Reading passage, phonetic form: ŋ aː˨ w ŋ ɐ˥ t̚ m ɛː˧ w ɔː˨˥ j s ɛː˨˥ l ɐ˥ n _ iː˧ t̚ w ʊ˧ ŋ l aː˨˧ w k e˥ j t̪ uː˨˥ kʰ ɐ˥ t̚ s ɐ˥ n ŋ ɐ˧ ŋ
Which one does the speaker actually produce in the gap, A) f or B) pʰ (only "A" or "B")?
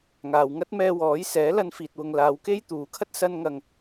A